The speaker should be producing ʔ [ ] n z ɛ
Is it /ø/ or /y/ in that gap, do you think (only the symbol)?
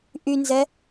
y